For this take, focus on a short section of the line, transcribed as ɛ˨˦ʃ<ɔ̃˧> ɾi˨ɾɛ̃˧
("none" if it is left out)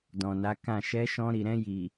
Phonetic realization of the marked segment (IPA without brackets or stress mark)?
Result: ɔ̃˧